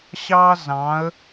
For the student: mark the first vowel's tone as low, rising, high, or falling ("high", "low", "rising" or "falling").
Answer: high